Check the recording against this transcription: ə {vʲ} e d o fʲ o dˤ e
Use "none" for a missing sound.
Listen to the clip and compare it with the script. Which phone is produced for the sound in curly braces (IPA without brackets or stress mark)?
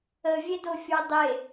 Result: vʲ